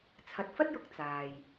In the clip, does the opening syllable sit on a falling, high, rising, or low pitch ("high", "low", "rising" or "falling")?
low